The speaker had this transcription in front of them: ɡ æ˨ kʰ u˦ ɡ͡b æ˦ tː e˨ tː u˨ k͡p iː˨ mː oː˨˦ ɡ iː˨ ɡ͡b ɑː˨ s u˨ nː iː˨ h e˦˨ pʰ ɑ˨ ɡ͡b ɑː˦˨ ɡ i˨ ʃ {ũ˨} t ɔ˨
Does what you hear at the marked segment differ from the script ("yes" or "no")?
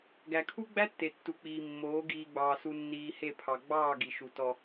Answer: yes